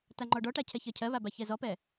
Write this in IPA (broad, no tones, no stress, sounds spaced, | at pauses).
t a ŋ͡ǃ ɔ ɖ ɔ ʈ a cʰ ɛ ç ɜ cʰ ɜ β a b a ç ɛ z ɔ p ɛ